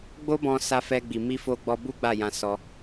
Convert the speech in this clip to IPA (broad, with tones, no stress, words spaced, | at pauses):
ɡ͡bo˦bɔ̃˧ sa˧fɛ˧ɡ͡bi˨ mi˧fo˧ɡ͡bɔ˧bu˦ ɡ͡ba˦˨jã˧ sɔ˧